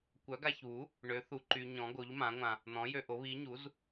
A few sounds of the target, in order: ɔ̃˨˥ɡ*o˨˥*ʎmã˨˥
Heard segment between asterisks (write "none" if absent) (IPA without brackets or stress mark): o˨˥